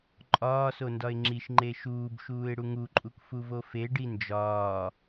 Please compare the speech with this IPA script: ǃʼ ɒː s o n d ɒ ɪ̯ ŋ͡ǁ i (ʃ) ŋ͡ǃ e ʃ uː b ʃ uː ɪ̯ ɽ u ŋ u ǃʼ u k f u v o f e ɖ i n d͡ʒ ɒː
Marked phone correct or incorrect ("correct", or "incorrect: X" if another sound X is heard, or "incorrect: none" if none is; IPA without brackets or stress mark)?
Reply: correct